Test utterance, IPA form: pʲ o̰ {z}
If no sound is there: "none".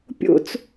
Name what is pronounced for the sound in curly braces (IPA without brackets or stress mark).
t͡s